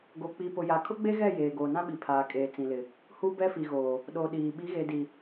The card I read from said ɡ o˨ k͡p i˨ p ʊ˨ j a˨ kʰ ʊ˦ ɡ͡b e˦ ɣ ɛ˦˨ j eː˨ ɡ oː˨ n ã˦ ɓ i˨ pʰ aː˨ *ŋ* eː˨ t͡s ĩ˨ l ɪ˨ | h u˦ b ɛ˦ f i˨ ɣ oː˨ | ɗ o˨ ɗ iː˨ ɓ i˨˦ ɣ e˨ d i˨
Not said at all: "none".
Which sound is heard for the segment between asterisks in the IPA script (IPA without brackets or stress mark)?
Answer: kʼ